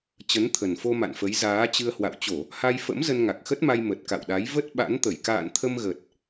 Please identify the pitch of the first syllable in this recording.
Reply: rising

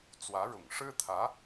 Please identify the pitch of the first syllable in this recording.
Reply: rising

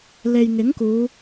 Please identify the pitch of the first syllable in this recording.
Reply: low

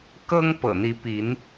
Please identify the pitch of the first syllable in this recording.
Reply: high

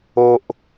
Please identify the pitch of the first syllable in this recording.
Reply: high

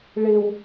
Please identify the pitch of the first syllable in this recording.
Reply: low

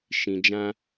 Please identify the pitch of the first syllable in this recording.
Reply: low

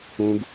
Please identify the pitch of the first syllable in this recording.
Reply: high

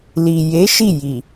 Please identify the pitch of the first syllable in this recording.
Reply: low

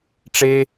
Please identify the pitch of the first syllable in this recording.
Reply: high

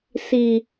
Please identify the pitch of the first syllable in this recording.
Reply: low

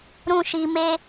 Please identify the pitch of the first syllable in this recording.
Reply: high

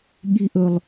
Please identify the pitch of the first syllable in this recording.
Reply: high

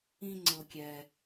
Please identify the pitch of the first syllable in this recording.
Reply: low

